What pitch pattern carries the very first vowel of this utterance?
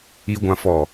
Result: high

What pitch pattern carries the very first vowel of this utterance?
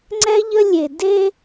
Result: high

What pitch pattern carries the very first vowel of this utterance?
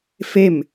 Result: falling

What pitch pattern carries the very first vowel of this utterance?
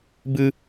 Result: high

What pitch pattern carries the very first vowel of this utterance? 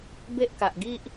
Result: high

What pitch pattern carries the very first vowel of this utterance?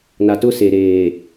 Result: low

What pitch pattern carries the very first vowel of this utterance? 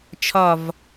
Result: falling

